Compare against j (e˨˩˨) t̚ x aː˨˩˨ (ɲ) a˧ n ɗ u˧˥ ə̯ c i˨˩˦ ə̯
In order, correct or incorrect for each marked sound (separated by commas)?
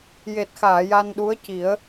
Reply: incorrect, incorrect